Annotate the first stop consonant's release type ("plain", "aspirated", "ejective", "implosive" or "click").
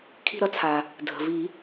aspirated